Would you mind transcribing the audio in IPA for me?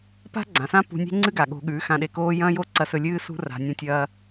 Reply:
p a̤˦ ɡ͡ǀ ã˨ s ã˦ p ṳ˧ nʲ e̤˦ ŋ͡ǀ ɨ˦ ɡ a˨ ɠ o̤˧ ɠ ʉ˨˦ x ã˧ ɗ e˧ k oː˦ j ɐ̃ː˦ j o˦ ǀ ɐ˧ s ɵ˧ lʲ ɨː˦ s ṳ˦ r a̤˧ nʲ ɐ̃˧ tʲ ɐː˧

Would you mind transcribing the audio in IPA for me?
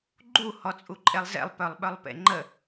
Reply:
ɡ͡ǃ u h ɔ t͡sʼ u ǃʼ e lˠ z ḛ lˠ p œ lˠ ɓ œ lˠ p ḛ ŋ͡ǃ ə

